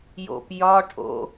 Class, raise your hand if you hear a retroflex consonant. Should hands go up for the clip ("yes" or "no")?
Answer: yes